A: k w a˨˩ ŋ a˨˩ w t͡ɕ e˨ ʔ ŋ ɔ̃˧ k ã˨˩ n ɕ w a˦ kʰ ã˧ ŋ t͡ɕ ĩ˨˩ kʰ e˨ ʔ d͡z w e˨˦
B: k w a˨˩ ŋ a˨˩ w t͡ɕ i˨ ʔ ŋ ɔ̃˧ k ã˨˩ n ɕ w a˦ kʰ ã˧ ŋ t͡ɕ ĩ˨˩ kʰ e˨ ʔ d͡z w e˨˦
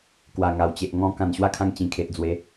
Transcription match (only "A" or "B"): A